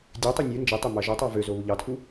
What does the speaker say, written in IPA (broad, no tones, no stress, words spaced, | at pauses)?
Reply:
dʲøtˤu nʲu nd͡ʒitˤømɑ ʒotˤɑ vøzoβu ʎɑtʰu